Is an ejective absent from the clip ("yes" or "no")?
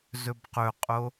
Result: no